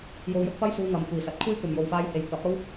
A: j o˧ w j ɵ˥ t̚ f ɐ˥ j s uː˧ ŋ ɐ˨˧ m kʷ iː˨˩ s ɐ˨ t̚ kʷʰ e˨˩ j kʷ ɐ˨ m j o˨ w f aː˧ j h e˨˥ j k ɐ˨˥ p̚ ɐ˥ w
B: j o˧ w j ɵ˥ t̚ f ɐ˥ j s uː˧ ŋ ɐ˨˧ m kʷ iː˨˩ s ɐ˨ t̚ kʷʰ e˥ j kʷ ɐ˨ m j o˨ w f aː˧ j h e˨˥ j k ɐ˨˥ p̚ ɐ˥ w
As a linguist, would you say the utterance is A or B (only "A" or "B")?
B